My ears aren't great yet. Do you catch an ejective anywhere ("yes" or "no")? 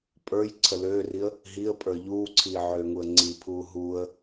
yes